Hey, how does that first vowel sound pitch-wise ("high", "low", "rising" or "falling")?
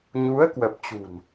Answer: rising